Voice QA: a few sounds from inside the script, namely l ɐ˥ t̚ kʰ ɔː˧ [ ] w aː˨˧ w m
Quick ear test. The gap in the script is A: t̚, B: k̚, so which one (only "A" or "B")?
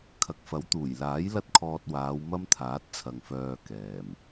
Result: A